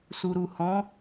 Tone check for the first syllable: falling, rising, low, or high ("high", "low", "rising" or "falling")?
low